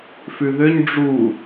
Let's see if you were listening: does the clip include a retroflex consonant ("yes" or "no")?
yes